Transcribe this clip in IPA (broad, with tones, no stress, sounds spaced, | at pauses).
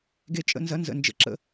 ɡ e˦ t͡ʃʼ ə̰˦ n z ɐ˦ n z ə̰˦˨ n d͡ʒ ə̰˦ ǁ ə̰˦